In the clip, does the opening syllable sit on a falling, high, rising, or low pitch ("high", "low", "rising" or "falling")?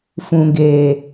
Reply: low